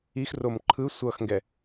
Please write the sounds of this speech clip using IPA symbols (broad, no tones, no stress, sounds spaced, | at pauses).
i x r o m ǃʰ ɯ sʷ ʌ x ŋ ɡ ɛ